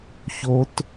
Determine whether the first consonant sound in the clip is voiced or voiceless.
voiceless